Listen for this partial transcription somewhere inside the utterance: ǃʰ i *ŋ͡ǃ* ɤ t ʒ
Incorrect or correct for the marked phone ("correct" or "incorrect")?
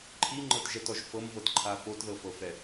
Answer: correct